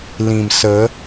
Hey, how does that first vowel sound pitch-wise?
low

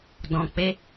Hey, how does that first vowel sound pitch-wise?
high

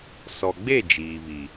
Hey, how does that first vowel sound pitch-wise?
low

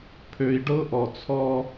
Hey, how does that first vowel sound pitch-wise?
low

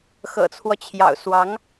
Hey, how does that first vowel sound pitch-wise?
low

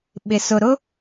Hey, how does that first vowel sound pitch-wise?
low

